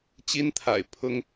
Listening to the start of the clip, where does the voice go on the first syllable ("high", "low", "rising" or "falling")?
high